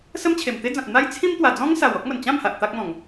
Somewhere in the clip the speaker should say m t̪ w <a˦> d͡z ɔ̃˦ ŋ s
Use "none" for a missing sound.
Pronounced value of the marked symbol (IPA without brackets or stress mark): a˨˩